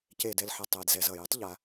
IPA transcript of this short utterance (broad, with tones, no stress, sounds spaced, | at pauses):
c eː˨ d ɛ˨ l ħ ʌ˨ tˤ ɛː˨ d z ɛ˨ z ʌː˨ j ɛ˦ tˤ ʎ a˨˦